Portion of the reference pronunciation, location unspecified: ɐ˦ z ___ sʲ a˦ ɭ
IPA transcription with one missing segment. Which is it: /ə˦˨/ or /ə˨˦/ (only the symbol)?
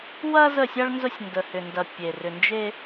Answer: ə˦˨